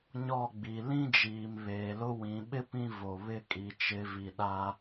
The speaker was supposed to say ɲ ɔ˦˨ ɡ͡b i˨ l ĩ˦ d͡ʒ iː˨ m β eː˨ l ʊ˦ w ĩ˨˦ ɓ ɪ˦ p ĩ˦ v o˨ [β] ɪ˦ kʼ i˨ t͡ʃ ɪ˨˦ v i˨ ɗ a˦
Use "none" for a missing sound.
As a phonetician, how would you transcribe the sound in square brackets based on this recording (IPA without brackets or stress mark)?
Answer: β